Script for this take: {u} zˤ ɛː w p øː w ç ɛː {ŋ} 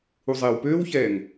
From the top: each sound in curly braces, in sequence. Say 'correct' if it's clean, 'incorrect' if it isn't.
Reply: correct, correct

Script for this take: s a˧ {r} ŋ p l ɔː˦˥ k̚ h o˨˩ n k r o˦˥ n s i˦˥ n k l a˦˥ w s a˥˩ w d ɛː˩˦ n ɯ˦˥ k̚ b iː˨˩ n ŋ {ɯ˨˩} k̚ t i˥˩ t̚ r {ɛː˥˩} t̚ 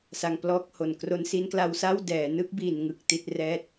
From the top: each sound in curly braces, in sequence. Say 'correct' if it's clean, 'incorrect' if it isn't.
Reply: incorrect, correct, correct

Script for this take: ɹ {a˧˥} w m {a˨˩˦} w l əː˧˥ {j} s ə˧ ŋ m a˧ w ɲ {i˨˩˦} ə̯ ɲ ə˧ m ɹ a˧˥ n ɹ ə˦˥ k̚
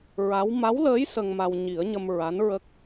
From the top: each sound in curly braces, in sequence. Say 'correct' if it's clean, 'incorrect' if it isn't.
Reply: correct, incorrect, correct, correct

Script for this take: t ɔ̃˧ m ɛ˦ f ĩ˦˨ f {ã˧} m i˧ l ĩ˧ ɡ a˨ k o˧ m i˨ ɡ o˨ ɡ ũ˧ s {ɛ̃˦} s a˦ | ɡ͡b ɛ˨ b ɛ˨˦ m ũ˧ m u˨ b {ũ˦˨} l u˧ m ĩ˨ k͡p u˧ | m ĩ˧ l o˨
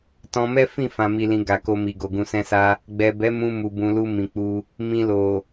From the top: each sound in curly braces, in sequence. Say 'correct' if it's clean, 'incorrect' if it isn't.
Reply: correct, correct, incorrect

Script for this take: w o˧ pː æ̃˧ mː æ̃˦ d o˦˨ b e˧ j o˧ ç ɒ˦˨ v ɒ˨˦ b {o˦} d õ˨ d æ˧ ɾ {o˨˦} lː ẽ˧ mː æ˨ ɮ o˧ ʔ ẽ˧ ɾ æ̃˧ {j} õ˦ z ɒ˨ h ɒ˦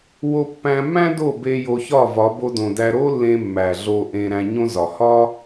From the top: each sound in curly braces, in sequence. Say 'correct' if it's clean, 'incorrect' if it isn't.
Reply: incorrect, incorrect, incorrect

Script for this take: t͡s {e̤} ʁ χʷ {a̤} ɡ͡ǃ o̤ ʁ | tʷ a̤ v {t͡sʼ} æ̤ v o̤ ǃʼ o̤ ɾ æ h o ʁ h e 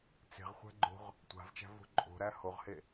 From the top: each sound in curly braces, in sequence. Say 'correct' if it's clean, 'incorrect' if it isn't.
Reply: correct, incorrect, incorrect

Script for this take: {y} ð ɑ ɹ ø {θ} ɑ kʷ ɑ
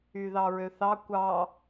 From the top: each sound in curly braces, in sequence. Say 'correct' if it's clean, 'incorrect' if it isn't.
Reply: correct, correct

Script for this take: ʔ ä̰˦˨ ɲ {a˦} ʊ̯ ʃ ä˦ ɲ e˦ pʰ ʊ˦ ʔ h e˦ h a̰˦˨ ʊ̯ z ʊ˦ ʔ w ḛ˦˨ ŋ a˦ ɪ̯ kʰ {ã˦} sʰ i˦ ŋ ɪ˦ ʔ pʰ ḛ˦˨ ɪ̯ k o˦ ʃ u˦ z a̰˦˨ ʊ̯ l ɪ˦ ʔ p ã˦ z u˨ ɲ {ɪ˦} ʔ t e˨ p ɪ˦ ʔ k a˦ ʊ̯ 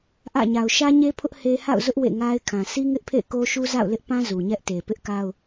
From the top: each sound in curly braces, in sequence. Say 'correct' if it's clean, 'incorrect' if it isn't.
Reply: incorrect, incorrect, incorrect

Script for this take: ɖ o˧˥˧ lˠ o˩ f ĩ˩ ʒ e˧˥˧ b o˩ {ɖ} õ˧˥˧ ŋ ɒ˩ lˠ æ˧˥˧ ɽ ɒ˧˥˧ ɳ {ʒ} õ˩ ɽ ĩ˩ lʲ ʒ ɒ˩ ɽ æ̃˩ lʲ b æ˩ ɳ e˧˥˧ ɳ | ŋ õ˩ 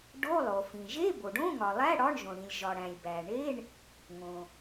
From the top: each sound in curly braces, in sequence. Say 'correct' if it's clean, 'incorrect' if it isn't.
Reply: correct, correct

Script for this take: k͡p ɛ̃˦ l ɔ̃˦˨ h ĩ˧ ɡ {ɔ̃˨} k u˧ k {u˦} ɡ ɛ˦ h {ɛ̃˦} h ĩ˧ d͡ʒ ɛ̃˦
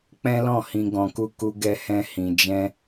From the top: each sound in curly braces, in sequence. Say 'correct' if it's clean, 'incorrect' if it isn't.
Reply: correct, correct, correct

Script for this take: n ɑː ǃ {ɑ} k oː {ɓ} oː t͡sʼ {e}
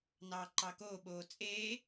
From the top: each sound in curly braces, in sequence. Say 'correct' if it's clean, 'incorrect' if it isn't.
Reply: correct, correct, incorrect

